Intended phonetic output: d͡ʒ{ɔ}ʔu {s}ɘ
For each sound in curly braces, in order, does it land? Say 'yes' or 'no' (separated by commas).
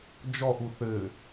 yes, no